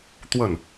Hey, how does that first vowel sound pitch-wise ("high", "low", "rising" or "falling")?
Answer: falling